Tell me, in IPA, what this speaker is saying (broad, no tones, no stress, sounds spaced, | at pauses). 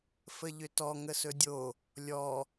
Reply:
f ə ʎ ʏ t ɔ ŋ ə s ɵ dʲ o | lʲ ɔ